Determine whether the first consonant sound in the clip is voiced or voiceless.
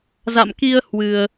voiced